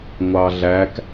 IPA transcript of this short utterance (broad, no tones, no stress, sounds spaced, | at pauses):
ŋʷ ɑ ɮ æ k